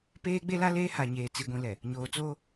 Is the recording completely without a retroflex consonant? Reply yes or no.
yes